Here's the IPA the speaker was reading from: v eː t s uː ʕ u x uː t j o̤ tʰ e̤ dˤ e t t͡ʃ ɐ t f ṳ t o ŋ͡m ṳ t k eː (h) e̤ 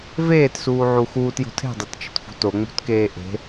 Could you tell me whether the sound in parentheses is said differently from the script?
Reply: yes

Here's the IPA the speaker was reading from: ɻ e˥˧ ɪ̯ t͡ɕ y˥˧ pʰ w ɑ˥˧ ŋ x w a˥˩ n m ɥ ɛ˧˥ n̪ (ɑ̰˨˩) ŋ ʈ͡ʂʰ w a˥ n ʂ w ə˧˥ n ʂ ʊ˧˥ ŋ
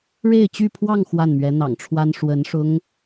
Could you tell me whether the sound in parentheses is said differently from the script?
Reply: no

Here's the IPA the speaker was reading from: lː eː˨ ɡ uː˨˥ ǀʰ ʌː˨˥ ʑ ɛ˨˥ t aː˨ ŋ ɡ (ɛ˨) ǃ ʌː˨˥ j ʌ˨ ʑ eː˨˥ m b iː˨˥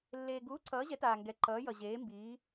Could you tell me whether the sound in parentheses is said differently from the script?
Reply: no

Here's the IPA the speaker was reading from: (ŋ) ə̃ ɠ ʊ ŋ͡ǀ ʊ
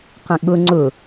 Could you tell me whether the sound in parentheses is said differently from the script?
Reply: yes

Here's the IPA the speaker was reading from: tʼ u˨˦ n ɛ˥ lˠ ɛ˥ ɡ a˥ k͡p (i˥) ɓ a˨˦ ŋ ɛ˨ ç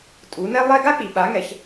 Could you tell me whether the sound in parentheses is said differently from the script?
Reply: yes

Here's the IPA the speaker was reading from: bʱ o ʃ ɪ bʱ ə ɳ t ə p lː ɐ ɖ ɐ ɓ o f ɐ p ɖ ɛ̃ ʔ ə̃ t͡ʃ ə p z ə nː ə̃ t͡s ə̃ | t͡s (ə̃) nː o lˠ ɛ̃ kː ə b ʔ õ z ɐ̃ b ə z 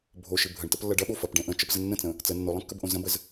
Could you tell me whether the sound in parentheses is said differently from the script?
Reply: yes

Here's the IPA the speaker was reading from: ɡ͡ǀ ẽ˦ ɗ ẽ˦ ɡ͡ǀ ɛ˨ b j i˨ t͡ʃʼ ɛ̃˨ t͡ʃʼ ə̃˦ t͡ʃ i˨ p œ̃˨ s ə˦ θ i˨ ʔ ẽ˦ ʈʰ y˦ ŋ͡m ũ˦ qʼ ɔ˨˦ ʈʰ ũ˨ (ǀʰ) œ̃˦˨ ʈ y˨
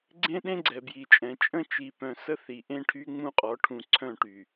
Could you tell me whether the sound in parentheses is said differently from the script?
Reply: no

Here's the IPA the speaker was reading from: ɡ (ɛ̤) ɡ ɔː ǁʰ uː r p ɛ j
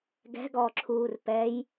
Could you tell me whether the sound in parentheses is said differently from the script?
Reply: no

